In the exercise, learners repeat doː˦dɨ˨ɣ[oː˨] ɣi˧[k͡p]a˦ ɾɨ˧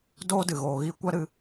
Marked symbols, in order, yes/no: yes, no

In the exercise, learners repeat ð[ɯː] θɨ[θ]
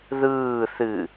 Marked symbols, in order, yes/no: yes, no

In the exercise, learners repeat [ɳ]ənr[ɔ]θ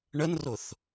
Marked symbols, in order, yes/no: yes, no

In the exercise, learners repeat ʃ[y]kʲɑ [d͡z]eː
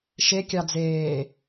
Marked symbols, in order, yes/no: no, yes

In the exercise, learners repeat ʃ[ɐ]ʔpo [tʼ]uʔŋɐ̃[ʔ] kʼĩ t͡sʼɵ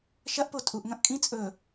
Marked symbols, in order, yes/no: yes, yes, yes

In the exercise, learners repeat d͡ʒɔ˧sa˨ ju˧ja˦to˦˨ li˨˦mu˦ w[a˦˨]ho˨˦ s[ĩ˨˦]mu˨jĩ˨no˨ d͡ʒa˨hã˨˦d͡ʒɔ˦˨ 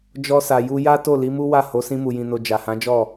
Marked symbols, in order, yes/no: yes, no

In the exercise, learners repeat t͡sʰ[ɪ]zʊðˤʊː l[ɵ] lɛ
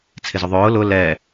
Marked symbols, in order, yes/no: yes, no

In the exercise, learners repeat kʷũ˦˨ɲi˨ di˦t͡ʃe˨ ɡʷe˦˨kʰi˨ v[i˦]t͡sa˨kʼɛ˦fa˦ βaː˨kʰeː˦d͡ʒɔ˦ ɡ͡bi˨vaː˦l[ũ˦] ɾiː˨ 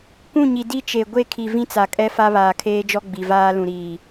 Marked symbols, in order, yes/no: no, no

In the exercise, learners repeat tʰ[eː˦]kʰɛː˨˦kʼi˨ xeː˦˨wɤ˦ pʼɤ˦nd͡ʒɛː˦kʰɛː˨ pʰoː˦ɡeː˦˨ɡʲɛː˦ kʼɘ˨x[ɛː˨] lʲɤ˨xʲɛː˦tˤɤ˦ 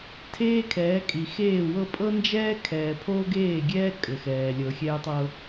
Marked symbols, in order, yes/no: yes, yes

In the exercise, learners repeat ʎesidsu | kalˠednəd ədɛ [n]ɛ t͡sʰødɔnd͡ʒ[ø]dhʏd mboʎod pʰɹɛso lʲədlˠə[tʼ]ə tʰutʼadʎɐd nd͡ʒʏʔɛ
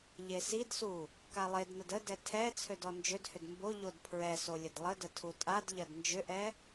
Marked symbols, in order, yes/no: no, yes, no

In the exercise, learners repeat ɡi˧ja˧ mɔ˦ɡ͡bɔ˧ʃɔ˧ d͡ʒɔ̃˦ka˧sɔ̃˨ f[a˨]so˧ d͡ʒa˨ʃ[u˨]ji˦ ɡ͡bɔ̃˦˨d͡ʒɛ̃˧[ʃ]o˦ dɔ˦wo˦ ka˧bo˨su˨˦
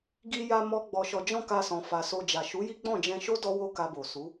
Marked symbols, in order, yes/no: yes, no, yes

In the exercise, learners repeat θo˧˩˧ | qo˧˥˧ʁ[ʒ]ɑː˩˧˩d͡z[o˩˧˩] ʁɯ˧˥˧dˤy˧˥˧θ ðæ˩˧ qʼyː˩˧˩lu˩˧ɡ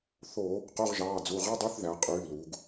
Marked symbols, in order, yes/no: yes, no

